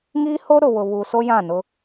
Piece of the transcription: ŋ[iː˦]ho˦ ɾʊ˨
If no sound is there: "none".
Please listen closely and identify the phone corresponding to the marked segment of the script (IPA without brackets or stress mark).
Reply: iː˦